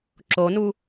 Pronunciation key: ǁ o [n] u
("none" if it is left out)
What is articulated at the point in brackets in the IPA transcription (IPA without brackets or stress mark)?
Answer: n